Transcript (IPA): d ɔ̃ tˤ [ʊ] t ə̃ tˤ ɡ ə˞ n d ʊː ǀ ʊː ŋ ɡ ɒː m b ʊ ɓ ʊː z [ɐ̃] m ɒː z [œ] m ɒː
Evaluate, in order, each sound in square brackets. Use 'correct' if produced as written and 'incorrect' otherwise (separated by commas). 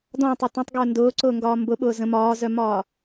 correct, incorrect, correct